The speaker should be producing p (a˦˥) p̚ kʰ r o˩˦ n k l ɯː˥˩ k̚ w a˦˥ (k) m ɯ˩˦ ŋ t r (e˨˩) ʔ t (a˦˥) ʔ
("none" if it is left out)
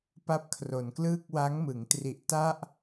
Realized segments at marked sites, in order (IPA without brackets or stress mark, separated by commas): a˦˥, ŋ, i˨˩, a˥˩